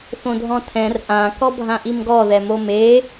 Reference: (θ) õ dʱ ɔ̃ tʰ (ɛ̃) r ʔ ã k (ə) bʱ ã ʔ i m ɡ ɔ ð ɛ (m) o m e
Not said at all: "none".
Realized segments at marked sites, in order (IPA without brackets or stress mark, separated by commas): θ, ɛ̃, ɔ, m